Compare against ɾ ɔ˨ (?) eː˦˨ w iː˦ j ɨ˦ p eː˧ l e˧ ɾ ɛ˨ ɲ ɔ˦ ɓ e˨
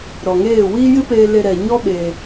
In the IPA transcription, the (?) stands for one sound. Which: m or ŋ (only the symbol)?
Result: ŋ